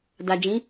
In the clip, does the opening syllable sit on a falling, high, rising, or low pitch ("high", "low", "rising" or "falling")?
low